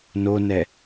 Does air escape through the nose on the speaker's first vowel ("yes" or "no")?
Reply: no